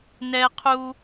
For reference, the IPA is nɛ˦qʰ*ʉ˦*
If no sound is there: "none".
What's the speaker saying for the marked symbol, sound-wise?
u˦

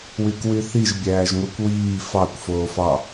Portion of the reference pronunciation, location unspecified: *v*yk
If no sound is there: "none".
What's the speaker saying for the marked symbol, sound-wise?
w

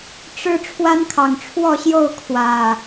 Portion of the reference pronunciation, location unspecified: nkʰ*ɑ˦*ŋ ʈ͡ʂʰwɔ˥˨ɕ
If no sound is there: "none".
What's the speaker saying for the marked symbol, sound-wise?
ɑ˨˩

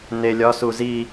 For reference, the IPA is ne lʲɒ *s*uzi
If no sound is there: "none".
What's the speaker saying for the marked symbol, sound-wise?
s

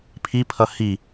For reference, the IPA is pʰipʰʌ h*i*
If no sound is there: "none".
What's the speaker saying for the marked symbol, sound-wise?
i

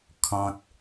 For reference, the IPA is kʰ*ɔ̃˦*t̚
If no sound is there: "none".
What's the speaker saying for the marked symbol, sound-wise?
ɔ̃˦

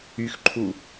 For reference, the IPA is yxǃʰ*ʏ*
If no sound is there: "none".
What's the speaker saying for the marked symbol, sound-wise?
u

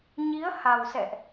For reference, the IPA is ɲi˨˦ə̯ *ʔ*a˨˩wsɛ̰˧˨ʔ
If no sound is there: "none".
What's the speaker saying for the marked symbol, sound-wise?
h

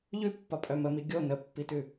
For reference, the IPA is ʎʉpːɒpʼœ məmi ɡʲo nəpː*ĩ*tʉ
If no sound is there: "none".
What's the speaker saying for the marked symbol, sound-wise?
i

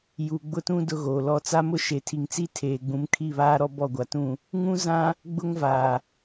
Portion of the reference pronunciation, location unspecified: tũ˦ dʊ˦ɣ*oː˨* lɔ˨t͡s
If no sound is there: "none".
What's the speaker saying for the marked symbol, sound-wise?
oː˨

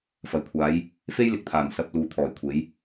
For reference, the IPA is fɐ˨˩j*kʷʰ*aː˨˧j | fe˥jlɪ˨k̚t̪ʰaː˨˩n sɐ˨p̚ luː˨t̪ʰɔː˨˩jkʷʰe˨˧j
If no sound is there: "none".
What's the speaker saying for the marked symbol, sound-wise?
kʷʰ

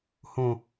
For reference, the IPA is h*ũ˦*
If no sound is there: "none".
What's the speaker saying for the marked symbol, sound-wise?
ũ˨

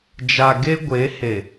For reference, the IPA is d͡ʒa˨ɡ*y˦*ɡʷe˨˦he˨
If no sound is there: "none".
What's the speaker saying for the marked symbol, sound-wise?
e˦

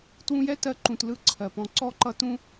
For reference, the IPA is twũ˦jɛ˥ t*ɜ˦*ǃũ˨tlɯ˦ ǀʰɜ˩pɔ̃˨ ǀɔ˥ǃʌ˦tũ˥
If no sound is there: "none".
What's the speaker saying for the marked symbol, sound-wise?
ɜ˦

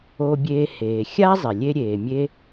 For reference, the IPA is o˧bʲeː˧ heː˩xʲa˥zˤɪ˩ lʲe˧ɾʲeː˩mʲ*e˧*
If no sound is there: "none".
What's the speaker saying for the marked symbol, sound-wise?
e˧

